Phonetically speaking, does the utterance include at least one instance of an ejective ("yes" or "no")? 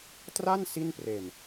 no